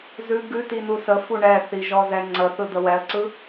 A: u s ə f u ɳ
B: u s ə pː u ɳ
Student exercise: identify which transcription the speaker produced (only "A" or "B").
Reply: A